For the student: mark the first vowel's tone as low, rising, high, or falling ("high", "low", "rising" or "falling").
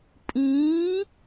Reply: rising